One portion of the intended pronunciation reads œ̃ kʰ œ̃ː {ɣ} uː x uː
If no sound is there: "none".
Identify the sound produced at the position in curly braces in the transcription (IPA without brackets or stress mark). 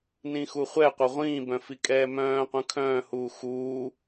h